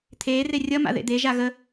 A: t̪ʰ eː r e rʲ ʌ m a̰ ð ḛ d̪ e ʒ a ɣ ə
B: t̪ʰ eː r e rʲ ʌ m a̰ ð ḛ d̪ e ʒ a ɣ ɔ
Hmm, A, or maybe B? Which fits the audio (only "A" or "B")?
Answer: A